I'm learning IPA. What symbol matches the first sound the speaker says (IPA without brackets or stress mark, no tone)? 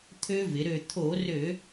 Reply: t̪ʰ